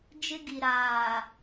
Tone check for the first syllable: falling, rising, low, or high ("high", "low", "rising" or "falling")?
high